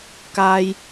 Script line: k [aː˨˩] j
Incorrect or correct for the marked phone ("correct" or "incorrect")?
incorrect